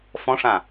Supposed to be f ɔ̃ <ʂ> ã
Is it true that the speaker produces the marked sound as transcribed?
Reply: yes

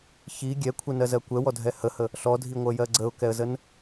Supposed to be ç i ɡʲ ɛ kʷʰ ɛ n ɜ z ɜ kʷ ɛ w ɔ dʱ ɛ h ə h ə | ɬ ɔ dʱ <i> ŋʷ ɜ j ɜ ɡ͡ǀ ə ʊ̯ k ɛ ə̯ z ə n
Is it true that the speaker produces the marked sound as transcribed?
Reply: yes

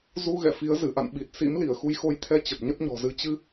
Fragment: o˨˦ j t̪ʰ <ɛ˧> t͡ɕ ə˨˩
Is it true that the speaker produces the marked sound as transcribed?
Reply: yes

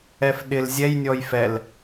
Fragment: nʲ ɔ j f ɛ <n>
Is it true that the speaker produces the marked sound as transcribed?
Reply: no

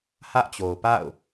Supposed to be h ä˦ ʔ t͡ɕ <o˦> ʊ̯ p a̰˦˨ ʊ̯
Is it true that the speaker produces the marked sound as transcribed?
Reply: no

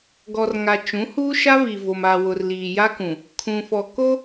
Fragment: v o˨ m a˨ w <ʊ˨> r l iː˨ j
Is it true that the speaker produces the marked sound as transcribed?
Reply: yes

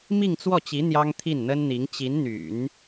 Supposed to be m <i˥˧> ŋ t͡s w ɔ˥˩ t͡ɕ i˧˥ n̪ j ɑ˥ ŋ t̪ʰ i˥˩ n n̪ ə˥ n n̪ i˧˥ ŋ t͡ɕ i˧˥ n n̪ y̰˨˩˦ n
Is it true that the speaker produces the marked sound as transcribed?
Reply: yes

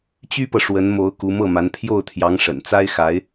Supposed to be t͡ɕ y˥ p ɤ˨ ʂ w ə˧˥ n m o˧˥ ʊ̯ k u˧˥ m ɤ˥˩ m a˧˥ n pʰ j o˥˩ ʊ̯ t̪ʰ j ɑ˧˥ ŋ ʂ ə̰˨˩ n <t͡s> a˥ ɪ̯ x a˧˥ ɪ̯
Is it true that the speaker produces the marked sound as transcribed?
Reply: yes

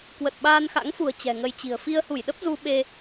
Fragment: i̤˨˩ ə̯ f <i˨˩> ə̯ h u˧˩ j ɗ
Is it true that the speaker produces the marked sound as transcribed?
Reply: no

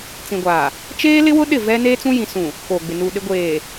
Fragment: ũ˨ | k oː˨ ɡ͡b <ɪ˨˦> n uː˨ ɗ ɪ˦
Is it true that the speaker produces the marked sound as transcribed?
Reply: no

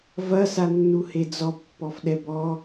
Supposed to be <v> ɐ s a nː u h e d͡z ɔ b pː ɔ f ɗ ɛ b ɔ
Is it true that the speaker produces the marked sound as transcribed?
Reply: yes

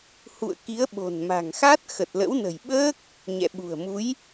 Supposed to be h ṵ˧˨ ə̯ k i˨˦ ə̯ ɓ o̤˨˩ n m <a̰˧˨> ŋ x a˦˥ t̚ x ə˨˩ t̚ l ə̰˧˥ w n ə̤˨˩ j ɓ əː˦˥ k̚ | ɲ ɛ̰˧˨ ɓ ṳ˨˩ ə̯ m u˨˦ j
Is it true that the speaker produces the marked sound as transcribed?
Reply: no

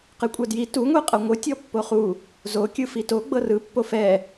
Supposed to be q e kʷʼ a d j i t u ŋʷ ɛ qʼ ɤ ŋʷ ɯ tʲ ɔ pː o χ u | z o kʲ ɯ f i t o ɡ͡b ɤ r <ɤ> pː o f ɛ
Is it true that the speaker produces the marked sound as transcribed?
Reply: no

